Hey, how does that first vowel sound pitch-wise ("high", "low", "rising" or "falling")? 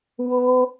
high